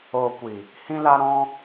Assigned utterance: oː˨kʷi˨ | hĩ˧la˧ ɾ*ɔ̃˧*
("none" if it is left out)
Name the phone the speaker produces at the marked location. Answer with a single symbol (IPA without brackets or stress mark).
ɔ̃˧